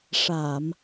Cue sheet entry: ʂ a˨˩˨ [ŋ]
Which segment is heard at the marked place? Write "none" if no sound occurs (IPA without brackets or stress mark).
m